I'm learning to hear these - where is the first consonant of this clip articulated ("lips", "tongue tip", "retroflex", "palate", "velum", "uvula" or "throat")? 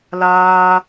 tongue tip